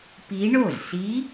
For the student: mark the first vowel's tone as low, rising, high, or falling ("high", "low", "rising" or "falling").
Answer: rising